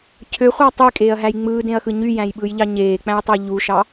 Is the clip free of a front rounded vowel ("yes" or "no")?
no